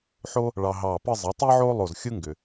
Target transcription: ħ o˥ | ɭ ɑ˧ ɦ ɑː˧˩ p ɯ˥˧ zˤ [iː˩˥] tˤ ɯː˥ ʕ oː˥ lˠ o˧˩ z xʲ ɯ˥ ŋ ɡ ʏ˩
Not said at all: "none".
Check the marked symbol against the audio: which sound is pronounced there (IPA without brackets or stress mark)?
i˩˥